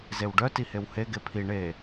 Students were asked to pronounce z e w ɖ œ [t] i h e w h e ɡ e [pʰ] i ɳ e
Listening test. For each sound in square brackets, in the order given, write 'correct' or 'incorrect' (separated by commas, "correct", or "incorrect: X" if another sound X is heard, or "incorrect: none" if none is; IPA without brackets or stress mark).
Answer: correct, correct